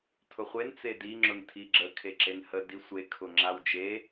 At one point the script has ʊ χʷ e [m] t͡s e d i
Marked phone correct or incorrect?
incorrect